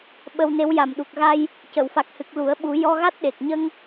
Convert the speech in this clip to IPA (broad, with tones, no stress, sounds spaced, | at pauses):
ɓ ə˧ w n e˧˥ w j a˨˩ m ɗ u˨˩ k̚ ɣ a˧ j | c ə˨˩˨ w f a˨˩ k̚ h ɨ˨˩ k̚ l u˨˩˦ ə̯ ɓ u˨˩˦ j ɔ˧ ɣ a˦˥ t̚ ɗ e˨˩ k̚ ɲ ə˧ ŋ